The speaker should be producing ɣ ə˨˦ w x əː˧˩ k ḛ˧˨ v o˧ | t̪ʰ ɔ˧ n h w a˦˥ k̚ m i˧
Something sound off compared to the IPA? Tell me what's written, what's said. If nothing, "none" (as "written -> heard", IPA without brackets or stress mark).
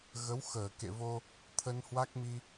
ɔ˧ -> ə˧